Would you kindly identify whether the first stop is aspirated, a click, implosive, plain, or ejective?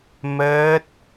plain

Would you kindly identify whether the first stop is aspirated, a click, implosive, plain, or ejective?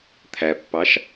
aspirated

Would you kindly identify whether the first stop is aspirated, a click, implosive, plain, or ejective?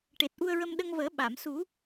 plain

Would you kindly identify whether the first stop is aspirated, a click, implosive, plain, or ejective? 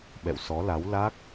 implosive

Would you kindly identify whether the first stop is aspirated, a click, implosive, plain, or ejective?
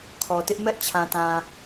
aspirated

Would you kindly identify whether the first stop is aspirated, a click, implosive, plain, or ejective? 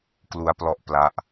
plain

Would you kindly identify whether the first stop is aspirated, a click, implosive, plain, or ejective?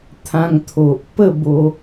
aspirated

